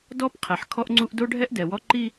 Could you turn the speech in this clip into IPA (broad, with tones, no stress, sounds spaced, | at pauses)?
d ɔ˦ p qʰ ɛ˨ ħ kʰ ɔ˦ ʔ ŋ͡ǀ u˦ ʔ d o˦ ɖʱ ɛ˦ ʔ d ɛ˨ w ɔ˦ ǃ i˦